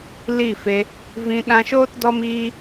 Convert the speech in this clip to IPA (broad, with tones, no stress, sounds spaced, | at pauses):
l i˦˨ f e˧ | v ĩ˧ ɗ ã˧ ʃ oː˦ t d ɔ˦ m iː˦